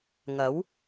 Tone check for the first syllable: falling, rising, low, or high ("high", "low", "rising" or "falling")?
rising